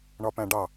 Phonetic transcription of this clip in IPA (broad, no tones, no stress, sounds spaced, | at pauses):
ɳ ɒ p æ̃ ɖ ɑ